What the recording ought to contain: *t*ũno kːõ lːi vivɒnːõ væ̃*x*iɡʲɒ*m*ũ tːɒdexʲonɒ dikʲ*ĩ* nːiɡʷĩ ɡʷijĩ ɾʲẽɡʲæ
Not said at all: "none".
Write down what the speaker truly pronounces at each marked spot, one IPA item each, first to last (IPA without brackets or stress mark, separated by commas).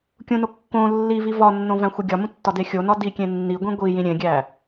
kʲ, xʷ, m, ẽ